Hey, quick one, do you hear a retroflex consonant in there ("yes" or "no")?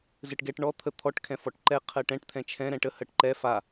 yes